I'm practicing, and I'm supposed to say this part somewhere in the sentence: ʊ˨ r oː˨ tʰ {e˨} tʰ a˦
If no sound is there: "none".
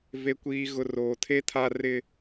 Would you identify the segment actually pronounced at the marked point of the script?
e˦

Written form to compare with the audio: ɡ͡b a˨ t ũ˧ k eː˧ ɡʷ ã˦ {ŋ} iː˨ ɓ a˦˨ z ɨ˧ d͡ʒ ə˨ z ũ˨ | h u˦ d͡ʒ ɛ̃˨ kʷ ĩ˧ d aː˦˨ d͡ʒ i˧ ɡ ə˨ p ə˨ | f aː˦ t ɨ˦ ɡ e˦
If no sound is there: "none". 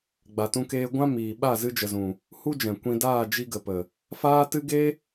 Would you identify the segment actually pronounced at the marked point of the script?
m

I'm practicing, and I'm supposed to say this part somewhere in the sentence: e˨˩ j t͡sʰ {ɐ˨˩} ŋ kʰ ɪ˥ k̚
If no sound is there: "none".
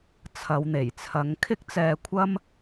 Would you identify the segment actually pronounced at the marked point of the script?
ɐ˨˥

